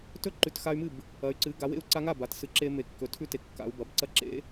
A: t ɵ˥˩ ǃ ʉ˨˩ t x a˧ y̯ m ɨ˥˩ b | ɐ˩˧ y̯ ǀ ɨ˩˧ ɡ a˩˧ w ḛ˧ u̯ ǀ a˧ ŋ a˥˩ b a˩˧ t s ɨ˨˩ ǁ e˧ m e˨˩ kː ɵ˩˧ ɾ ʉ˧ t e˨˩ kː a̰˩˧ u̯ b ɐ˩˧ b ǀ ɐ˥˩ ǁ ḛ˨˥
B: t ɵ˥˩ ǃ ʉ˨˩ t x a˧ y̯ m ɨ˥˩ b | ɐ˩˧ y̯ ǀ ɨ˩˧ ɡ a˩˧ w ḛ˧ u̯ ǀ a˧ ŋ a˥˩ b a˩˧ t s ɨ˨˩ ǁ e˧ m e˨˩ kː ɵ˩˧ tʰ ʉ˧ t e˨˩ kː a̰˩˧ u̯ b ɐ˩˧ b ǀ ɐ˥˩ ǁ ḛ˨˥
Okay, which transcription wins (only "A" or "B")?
B